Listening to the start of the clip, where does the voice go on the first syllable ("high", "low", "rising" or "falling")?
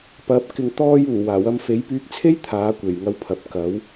rising